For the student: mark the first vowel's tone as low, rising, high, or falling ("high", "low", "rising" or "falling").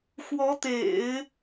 rising